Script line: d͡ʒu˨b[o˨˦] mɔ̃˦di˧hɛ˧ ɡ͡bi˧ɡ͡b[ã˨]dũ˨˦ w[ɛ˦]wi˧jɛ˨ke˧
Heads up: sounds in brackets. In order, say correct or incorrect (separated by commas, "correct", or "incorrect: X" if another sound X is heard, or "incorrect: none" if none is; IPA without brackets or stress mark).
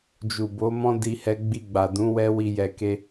correct, incorrect: a˨, correct